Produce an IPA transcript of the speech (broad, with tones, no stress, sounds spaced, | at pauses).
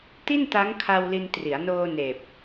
t i˥˩ n t a˦˥ ŋ kʰ a˧ w l i˧ n t r i˩˦ a̯ n oː˧ n eː˨˩ p̚